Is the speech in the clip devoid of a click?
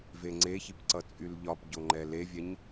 no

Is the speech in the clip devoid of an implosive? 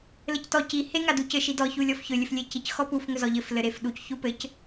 no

